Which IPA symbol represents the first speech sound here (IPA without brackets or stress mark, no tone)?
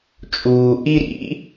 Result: t͡ʃʼ